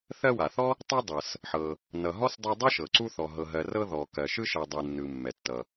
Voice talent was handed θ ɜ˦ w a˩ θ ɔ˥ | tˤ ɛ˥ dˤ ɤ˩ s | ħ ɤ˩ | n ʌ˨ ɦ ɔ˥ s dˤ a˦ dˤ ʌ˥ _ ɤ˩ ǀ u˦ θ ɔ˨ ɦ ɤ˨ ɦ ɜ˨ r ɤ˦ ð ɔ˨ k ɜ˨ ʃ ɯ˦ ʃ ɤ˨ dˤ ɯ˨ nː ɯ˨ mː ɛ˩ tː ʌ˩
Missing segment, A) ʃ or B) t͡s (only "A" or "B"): A